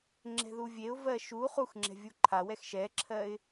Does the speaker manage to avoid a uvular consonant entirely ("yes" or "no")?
no